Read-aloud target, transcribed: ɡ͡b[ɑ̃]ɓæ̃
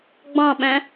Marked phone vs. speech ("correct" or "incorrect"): correct